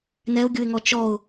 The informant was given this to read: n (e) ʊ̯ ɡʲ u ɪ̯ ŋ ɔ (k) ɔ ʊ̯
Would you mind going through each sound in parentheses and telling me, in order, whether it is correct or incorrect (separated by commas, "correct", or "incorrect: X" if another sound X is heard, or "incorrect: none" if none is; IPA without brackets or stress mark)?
incorrect: ɛ, incorrect: t͡ʃ